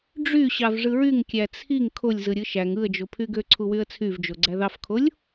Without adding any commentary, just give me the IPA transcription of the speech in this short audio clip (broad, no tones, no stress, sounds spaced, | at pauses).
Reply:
ɖ͡ʐ y ɕ ɑ v ʐ ɯ ɹ y ŋ kʲ æ t͡sʰ i ŋ kʰ o lʲ z ɯ ɾʲ ɯ ʃ æ ŋ ɯ ə̯ d͡ʒ o pʰ y ɡ ø ǀʰ u w y ə̯ t͡sʰ y v d͡ʒ o ɡ͡ǀ æ ð ɑ f kʰ o lʲ